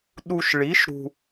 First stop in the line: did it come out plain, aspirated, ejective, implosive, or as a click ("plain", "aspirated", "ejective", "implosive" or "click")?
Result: implosive